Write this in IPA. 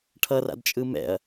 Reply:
ʈʰ ʌ r a̰ d t͡ʃʼ ɯ m ɛ̰ ɐ̯

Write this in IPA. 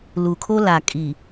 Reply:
l u˨ kʰ o˦ l a˨ kʼ i˨

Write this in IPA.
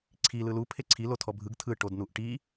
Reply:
ǀʰ i l ɯ l u pʰ e ǀʰ i l o tʰ ɔ bʱ ɯ ɡ tʰ ɯ ʈ o d n u ʔ ʈ i

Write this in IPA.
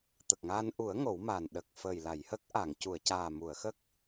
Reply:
t̪ ə˨˩ k̚ ŋ a˧ n ʔ u˨˩˦ ə̯ ŋ o˨˩˦ w m a˨˩ n ɗ ə˨˩ k̚ f əː˨˩ j l a˨˩˨ j h ə˦˥ k̚ ʔ a˨˩˨ ŋ c u˨˩˨ ə̯ c aː˨˩ m u˨˩˨ ə̯ x ə˦˥ k̚

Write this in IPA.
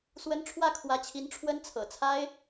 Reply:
s w ə˥ n ʈ͡ʂʰ w ä˥˩ kʰ w ä˧˥ t͡ɕʰ i˧˥ n ʈ͡ʂʰ w ə˥ n t͡sʰ ɤ̰˨˩ t͡sʰ a˥ ɪ̯

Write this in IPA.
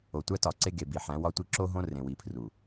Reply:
o˨ tʷ æ˦ t ɒ˨ ǀ e˦ ɡ e˨ b i˨ ħ æ̃˨˦ w ɒ˦ tʷ i˦ ǁ o˦ ɦ õ˦ r ẽ˨ w i˨ pʰ r u˨

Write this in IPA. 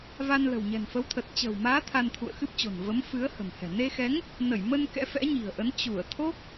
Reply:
v a˧ n l ə̤˨˩ w ɲ ɛ̤˨˩ n f ə˨˦ w t̪ʰ ə˨˩ t̚ t͡ɕ ə̤ː˨˩ w m aː˨˦ t̪ʰ a˧ n t̪ʰ ṵ˧˨ ə̯ x ɨ˦˥ p̚ t͡ɕ o̤˨˩ n v ə˨˦ m f ɨ˨˦ ə̯ h ə̤˨˩ m h ɛ̤˨˩ n e˧ x ɛ˨˦ ŋ | n ə˧˩ j m ə˧ n k ɛ̰˧˥ f ɛ̰˧˥ ɲ i̤˨˩ ə̯ ʔ ə˨˦ n t͡ɕ u˧˩ ə̯ t̪ʰ o˦˥ k̚

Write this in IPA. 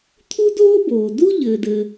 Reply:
t̪ʰ u˥ d oː˥ b oː˩ d u˥ ʎ ɘː˩ d ɘ˩

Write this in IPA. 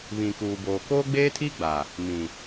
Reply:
β ĩ˨ k uː˨ b oː˨ k oː˦ ɡ͡b eː˦ tʰ i˦ ɡ͡b a˨ | m ĩ˨

